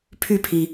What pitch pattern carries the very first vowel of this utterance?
falling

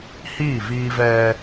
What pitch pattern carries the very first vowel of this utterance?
falling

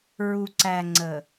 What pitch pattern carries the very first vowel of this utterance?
low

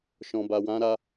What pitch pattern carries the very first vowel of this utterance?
low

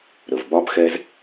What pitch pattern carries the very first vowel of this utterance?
low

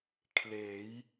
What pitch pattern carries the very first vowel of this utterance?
rising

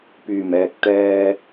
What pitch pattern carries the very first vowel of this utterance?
low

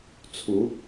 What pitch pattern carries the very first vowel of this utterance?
rising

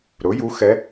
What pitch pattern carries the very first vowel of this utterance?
rising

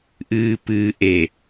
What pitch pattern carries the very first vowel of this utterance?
low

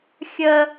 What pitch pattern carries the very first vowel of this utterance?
high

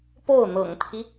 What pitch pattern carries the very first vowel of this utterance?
falling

